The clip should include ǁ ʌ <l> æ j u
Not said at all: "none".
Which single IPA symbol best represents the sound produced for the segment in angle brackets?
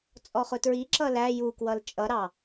l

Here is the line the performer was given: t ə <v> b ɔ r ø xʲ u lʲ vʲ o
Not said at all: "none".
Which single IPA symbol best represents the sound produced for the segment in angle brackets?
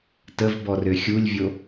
v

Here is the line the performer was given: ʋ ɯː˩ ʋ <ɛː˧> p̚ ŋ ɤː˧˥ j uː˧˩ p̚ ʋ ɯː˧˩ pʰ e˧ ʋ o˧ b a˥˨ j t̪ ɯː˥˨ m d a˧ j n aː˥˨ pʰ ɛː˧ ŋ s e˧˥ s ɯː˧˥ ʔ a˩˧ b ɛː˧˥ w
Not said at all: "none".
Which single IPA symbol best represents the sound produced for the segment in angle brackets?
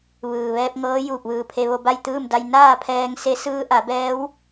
ɛː˧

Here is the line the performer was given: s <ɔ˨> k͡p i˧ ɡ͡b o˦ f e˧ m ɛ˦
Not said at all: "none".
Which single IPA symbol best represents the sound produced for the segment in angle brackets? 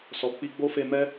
ɔ˨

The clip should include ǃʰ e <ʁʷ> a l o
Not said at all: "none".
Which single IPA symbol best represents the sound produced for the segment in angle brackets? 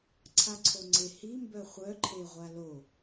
ʁʷ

